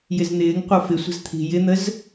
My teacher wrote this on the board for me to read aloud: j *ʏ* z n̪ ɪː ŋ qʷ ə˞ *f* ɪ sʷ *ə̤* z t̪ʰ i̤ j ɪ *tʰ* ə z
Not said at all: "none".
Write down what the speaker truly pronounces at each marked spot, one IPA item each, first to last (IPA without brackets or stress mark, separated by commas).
ɪ, f, ə̤, n̪